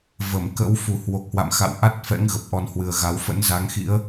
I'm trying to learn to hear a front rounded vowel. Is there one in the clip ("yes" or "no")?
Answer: no